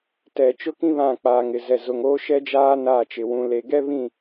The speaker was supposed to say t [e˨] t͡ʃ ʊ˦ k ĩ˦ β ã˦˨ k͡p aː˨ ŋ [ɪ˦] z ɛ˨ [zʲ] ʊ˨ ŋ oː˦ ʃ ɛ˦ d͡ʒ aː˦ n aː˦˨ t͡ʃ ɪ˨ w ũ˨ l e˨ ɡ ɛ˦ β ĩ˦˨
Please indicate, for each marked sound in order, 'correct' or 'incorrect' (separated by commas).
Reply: incorrect, incorrect, incorrect